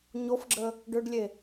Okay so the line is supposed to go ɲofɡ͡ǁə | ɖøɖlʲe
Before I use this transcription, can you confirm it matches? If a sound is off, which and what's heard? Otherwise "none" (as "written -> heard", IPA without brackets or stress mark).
none